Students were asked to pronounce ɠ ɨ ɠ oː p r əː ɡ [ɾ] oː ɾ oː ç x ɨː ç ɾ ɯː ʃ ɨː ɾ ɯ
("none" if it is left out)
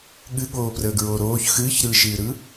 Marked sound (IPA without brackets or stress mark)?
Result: ɹ